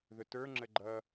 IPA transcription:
ðʊtə˞ ŋ͡ǁəɡ͡ǃʌ

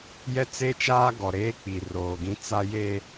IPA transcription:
jɛ˦t͡se˦t͡ʃaː˦ ɡɔ˨ɾeː˦k͡pi˨ roː˨ɡĩ˦ t͡sa˦ je˦

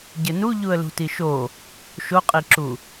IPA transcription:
ɟɘnu ʎuə̯lṳtiʃo | ʃoqʼiǁu

